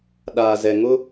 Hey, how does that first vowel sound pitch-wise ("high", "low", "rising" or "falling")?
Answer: low